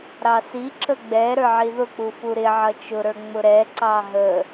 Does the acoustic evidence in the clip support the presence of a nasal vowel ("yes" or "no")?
no